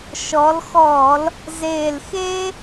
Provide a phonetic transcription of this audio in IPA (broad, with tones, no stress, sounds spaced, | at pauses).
ʃ ɔ˩˧ l x ɔː˧˩˧ l | z eː˨˩ l x eː˦